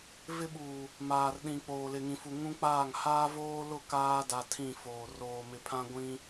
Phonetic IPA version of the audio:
v ɪ˦ ɓ uː˨ | m aː˨ r ɗ ĩ˨ k͡p oː˨ l ɪ˨ ŋ ĩ˨ f u˨ ŋ ũ˦ k͡p aː˦˨ ŋ h aː˦ v oː˦ l ʊ˦˨ k aː˦ d a˨ tʰ ĩ˦˨ f oː˨ r oː˨ m ɪ˨ pʰ ã˦ ɡʷ ĩ˦

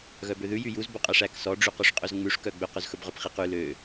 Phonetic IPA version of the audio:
ɣ œ b ø ð ʉ j y j u z b o qʼ æ ʂ æ k s ɔ ɖ͡ʐ y q ɵ ʂ qʼ ɵ z ŋ͡m ʉ ʂ k œ ɡ͡b ø q ɵ z x ɵ b ʁ œ p χ i q ʉ l ø

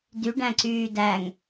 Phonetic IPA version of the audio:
d y ɖ æ̃ ǀ yː d æ ŋ

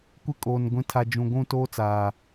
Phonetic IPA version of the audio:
kʷ ɪ˦ kʼ oː˨ n ɡʷ ĩ˨ tʰ a˨ d͡ʒ ũ˨ ɡʷ ũ˦˨ t oː˦ t͡s aː˨

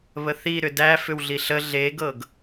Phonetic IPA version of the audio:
β ə θ i ɾ ʏ d æ f ʏ w ɮ i ɬ ə ɮ e ɡ ɤ ɡ

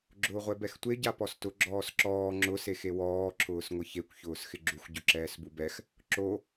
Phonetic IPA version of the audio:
ɡ͡ǁ ʊː ʁʷ ɛ b ɛ x tʷ e ɟ a p ɔ s t ʊ ɡ͡ǁ ɔː s ǁ ɔː ŋ͡ǁ ʊ s e x e w ɔː ǁʰ ʊː s ŋʷ ɪ ç e kʷ ç ʊː s x ɪ ɡ͡ǁ u x ɟ ʊ ǁ ɛː s b u b ɛ x | ǁ o

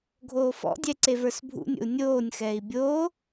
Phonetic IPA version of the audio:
ɡʱ oː f ɔ̰ dʲ ɛ ǀ e v ə˞ s bʱ ṵ nʲ o̰ u̯ nʲ oː nʲ x ɛː i̯ bʲ oː

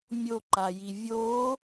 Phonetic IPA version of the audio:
mʲ o ǃ a j i vʲ o

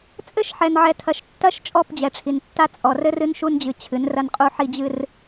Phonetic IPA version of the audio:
t͡sʼ ɘ˦˨ ʃ ħ ɛ˨ n ʕ ɛ˨ tʰ ɐ˨ ʃ tː ɐ˦˨ ʃ t͡ʃʼ ɔ˦˨ p d͡ʑ ɛ˨ ʈ͡ʂʰ i˨ n tː a˦ t͡sʼ ɔ˨ r ɘ˦ r ɨ˦ n ʃ u˦ n d͡ʑ ɨ˨ t͡ɕʰ ɨ˨˦ n r ɐ˦ n qʼ u˦ ħ i˦ d͡ʑ ɨ˦ r

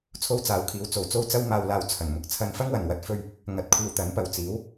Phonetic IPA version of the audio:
t͡sʰ o˥ w t͡s aː˨˧ w kʰ iː˨˧ w t͡s o˨ w t͡s o˥ w t͡s ɐ˥ w m aː˧ w l aː˧ w t͡sʰ ɐ˨˩ n m ʊ˨ k̚ t͡sʰ ɐ˧ n f ɐ˥ ŋ w ɐ˨˩ n w ɐ˨˥ t̚ f ɵ˧ ɥ | ŋ ɐ˧ t̚ kʷʰ iː˧ w t̪ ɐ˨˥ n p ɐ˨ w t͡s iː˨˥ w

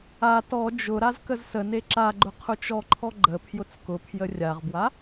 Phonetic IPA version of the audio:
a t ɔ d͡ʒ ʊ ɾ a z k ə z s ə n e ǁ a ɡ͡ǃ ʊ qʰ ʊ t͡ʃ ɔ ǃʰ ɔ ɡ͡ǃ ə pʰ j ʊ t͡s k ʊ pʰ j ə rʲ a ʁ b w a

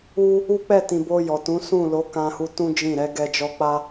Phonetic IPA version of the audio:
u˦ | u˦ k͡p ɛ˦˨ t ĩ˨ b o˧ j ɔ˨ t ũ˨˦ s ũ˦˨ l o˨˦ k ã˧ h u˧ t ũ˦ d͡ʒ ĩ˦˨ ɾ ɛ˨˦ ɡ ɛ˧ d͡ʒ ɔ˧ k͡p a˦

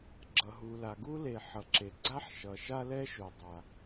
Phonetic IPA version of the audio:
ɡ͡ǁ ʌ˩ ɦ u˩ l a˩ ɡ u˥ l e˩ ħ ʌ˩ ǁ e˩ ɡ͡ǀ a˥ ħ ʃ ʌ˩ ʃ a˥ l ɛ˥ ʃ o˩ dˤ a˩

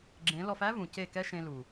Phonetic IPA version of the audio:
ɡ͡ǁ ẽ˨˦ l ɔ˧ f æ˦ v ũ˨ c e˦˨ k ɛ˦ ʃ ẽ˧ l u˨

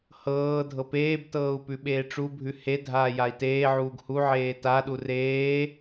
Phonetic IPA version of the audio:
h ɤː dʱ ɤ p eː b t ɤː u̯ p ʉ ɓ eː ʈ͡ʂ u bʱ ʉ h e dʱ aː j a i̯ t eː ʕ uː ɡ h u ʕ eː t a ɗ u r eː

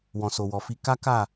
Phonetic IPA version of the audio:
w ɔ̃˨ s o˨ w ɔ˨ f i˧ k a˦ k a˦˨

